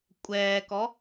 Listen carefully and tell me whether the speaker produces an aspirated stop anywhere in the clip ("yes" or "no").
no